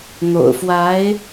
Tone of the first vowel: low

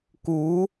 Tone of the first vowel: rising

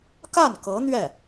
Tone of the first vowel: falling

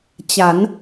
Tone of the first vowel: rising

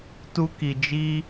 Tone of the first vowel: high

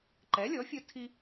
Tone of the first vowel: rising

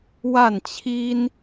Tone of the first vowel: falling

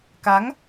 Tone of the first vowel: rising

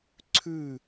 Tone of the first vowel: falling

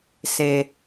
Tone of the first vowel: low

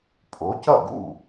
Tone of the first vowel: rising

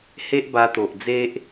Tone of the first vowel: high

